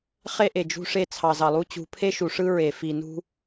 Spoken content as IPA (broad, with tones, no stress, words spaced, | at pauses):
χe˦ʔe˨d͡ʒṳ˦ʂe˦ t͡sʰɑ˨zɑ˨lˠu˦ t͡ɕṳ˨˦pʰe˦ʃu˨ ʂɯ˦ɹe˨ fi˨nṳ˦